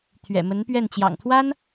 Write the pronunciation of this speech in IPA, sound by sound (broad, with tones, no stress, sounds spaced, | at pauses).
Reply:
t̪ʰ ɥ ɛ̰˨˩ m ə˧˥ n p ɥ ɛ˥˩ n t͡ɕ j ɑ̰˨˩ ŋ t̪ʰ w a˥ n